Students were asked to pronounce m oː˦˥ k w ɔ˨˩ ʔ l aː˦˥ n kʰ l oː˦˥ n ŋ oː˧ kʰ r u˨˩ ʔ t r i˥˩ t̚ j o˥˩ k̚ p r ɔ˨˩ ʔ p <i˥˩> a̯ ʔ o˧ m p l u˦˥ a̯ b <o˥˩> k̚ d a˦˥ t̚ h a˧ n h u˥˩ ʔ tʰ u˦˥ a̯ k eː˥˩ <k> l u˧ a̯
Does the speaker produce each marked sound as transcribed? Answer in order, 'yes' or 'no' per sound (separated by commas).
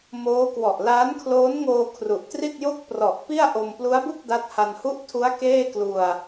yes, no, yes